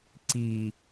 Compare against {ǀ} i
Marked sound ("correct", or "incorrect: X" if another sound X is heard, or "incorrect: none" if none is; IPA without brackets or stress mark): correct